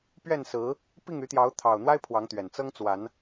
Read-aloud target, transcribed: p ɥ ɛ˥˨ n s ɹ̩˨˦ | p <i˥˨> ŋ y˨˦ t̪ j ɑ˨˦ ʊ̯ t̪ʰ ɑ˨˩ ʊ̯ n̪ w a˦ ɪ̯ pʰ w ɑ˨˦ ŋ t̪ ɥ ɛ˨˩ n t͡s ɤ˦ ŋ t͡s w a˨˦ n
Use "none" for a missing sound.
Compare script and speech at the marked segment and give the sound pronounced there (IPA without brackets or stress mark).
i˥˨